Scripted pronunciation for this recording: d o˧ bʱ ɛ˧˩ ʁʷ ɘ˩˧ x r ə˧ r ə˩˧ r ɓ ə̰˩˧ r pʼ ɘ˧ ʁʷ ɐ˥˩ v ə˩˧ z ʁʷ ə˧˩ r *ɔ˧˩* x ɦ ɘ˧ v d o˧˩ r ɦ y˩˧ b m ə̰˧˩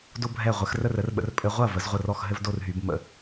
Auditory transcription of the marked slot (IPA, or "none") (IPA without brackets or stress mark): ɔ˧˩